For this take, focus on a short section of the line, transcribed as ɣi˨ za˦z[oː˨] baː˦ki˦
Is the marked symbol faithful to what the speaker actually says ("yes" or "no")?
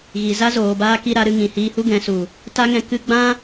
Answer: yes